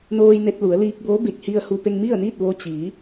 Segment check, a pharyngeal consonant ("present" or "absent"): absent